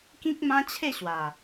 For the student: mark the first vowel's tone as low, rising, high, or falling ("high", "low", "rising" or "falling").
high